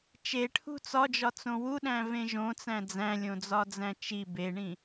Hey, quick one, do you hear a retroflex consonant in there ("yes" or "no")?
yes